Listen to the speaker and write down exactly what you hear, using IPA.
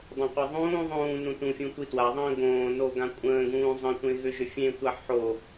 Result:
dˤ õ qʷ a ðˤ ũː ðˤ ũː n ũ t ũ fʲ ũ tʷ i t w a ðˤ ə̃ː ɡ õː n o ɡ ã kʷʼ ə̃ː ɡ ũː zˤ ə̃ tʷ ẽ ɣ ʏ ʒ ʏ fʲ ẽ tʷ a ħ o

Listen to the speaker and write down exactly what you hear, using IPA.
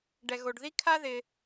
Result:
ɖ ɛ˩ ɣ o˩ ɖ ð i˥ kʰ a˥ ð ɪ˩

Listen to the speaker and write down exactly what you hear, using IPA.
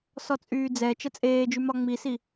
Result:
s ɔ t͡sʼ yː d͡z ɛ t͡ʃ ə t͡sʼ eː d͡ʒ y m ɒ ŋ͡m i s i

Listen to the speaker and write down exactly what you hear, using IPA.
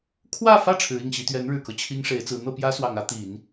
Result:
kʰ w ä˥˧ f ä˥˩ ʈ͡ʂʰ ɻ̩˧˥ i˥˩ ŋ ɕ i˧˥ t̪ ɥ ɛ˧˥ n ɻ ɻ̩˨˩ k ɤ˦ t͡ɕʰ i˥ ŋ ʂ e˧˥ ɪ̯ t͡s ɹ̩˧˥ n̪ ɤ˥˩ p j ä˥ s w ɑ˨˩ ŋ ä˧˥ t̪ i˨˩˦ n

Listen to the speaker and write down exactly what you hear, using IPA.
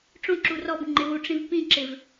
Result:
ʈ͡ʂ õ ǁ u r ɔ b ŋ͡ǃ ɪ w u ʈ͡ʂ ĩ v p ĩ ǁ ɪ v

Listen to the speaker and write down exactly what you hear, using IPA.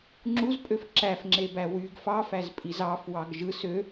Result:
ŋ͡ǁ u z pʼ ø f ǁ æ f ŋ͡ǁ e b æ w y ɡ f ɑ f æ z pʼ i z ɑ f w ɑ ɡ ʒ ɯ s ø

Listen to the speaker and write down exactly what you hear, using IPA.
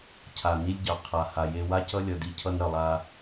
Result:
cʰ a˨ n i˦ lʲ ɟ ɑ˨ qʰ a˨ h a˨ j e˦ w a˦ c ʌ˦ lʲ ʌ˨ d i˦ cʰ ʌ˦ n ɾ ʌ˨ lˠ a˦

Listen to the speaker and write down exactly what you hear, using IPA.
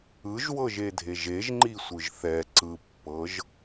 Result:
ɯ ʒ w ɤ ʒ e dʱ e ʒ e ʒ ŋ͡ǃ i sʷ ɯ ʒ θ ɛ ǀ ɯ pː ɤ ʒ

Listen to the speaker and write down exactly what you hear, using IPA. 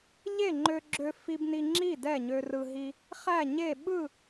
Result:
ʎ e˥˩ ŋ͡ǃ ø˧ ɡ͡ǁ ø˧ f i˧ b n i˧ ŋ͡ǁ i˥˩ d ɛ˥˩ ɲ ø˧ r ɯ˧ ɦ i˧ | χ æ˥˩ ɲ e˥˩ ɓ ɯ˥˩

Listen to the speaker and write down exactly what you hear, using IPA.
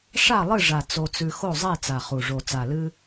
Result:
ʂ a˥˨ lˠ ɨ˥˨ ʐ a˨˩ t͡s o˧ t͡s ʉ˧ x o˥˨ zˤ e˥˨ t͡s a˨˩ χ u˨˩ ʐ o˨˩ t͡s a˨˩ l ɨ˧

